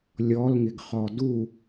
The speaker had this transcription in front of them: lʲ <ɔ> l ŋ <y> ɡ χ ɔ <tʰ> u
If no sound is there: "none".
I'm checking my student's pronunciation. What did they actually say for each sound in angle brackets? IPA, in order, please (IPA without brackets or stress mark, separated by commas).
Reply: ɔ, ɪ, d